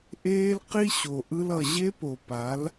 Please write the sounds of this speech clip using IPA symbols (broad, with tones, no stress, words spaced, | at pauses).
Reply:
ʔeː˦lqi˦ ɕo˨ʔɯ˦lʌ˨ ʑe˦po˨ pa˨˦l